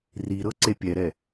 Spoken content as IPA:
riɾɤ ǀepʲɛɾɛ

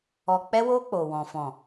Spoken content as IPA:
ɔ˨k͡pɛ˧wo˧ k͡po˨wɔ̃˨ fɔ̃˨

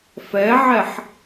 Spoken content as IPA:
fɛʕɛħ

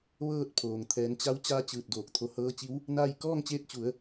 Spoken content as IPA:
ʋɤː˥˨t̚pʰoː˩ŋ t̪ʰɛː˩˧nt͡ɕa˧˥w t͡ɕaː˧˥t͡ɕɯː˧˩t̚doː˧˩k̚ t̪ʰo˧hɤː˧˥t͡ɕi˧˥w | na˥˨j kɔː˥˨ŋt͡ɕeː˧˥t̚t͡ɕu˩˧ə̯

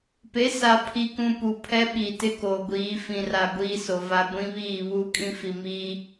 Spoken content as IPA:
pe˨˦sa˨pʰi˨kũ˨ pu˨pʰɛ˦ɓi˨tɪ˦ ko˨ɡʷiː˨˦ fĩ˨ra˨ ɡʷiː˦so˨va˦ ɡʷĩ˦βiː˦˨ βuː˦kʼĩ˦fi˨miː˦

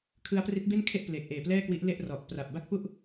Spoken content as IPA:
kʰɯ˦˥a̯pri˦˥t̚be˥˩nkʰe˥˩ʔ pleː˨˩k̚ʔeː˨˩plɛː˥˩kwi˦˥ʔ le˥˩ʔ rɔ˨˩ʔpra˨˩p̚ ba˥˩k̚pu˥˩ʔ

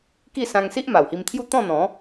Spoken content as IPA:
ki˥˧sã˧ŋ si˦ʔ ma˨˩whi˧mt̪ʰju˥˧ t̪ɔ̃˥˧n̪ɔ̃˨˦

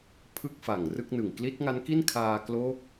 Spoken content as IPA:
pʰɯ˥˩k̚fa˨˩ŋ rɯ˥˩k̚nɯ˨˩ŋ kli˦˥t̚ŋa˦˥nki˥˩n kʰaː˧kloː˦˥k̚

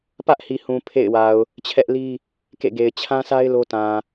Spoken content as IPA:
pä˦ʔhi˨hũ˨ pʰḛ˦˨ɪ̯wa˨ʊ̯ | t͡ɕʰɛ˦ʔli˦ | kḛ˦˨ɡe˨ɪ̯ t͡ɕʰã˦sa˦ɪ̯ lo˦tã˨

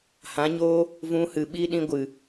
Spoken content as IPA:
hã˨˦ɲoː˦ | vũ˧ hɨ˨ɓi˧ ɗĩ˧ ɡʷɨ˨

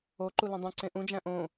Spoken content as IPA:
oǃu lẽdˤũǀẽ ʔũd͡ʒæ̃ ʔõ

